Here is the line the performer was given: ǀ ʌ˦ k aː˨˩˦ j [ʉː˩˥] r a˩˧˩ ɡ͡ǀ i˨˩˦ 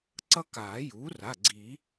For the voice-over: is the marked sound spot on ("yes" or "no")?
no